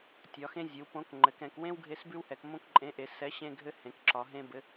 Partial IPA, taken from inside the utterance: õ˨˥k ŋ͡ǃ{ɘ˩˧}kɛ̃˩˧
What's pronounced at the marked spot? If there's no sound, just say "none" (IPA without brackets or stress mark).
ɘ˩˧